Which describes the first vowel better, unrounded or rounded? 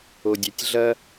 rounded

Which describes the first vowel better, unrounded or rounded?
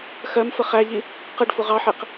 unrounded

